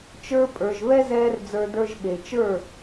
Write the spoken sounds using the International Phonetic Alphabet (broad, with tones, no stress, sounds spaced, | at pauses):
t͡ʃ ə˞˧ pʼ ə˞˨ ʒ β ɛ˦ z ɛː˧ r d͡z ə˞˧ d ə˞˧ ʒ ɓ e˨ t͡ʃ ə˞˦˨